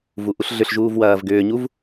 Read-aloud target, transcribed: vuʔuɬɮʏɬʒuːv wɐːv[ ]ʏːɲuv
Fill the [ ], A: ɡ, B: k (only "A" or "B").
A